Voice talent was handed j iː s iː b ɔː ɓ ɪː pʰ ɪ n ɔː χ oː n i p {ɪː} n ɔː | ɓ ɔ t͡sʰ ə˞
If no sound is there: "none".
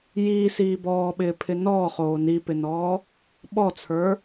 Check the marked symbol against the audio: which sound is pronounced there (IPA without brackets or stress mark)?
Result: ɪ